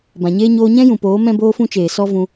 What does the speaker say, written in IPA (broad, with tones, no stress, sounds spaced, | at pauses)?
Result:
b ã˨ ɲ eː˦ ɲ oː˧ ɲ ɛ̃˦ j ũ˨ p oː˨˦ m ɛ̃˦ b oː˦ f ũ˦ t͡ʃ eː˨ s ɔ˦ v ũ˧